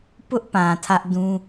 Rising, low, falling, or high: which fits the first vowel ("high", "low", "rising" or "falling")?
high